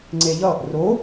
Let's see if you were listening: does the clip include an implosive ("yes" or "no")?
no